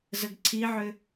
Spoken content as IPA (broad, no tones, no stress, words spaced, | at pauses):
zəɡǀʰiʕʏ